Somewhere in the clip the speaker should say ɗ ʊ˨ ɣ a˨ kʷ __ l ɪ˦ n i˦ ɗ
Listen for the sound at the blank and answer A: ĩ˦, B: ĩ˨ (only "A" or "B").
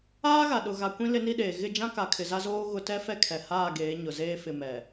A